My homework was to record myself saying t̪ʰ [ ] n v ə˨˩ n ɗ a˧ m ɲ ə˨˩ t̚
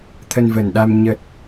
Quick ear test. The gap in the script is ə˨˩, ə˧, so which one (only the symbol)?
ə˧